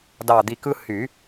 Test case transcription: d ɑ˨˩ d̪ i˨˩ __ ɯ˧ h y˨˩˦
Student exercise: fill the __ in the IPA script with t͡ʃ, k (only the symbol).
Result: k